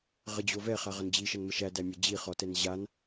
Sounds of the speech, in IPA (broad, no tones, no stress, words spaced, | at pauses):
ʁəd͡ʑo vɛχa ʁʌnd͡ʑiʃʌn məʃædæ mʲə d͡ʑi χɔtɛn ʑan